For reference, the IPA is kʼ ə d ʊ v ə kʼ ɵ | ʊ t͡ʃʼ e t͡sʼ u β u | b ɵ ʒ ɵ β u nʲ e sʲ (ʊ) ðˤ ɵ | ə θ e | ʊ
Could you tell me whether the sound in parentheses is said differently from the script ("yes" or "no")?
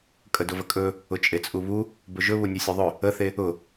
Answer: no